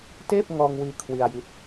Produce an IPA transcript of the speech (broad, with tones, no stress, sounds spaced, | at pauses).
t eː˥˩ p̚ ŋ ɔː˧ ŋ w iː˧ kʰ w i˧ a̯ j i˦˥ t̚